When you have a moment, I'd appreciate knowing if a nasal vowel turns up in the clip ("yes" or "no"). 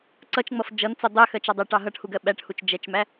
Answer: no